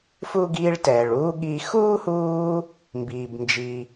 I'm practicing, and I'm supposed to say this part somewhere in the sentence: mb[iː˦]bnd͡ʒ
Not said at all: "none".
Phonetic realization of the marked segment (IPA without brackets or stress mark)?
iː˦